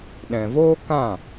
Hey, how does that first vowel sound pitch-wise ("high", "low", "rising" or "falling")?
low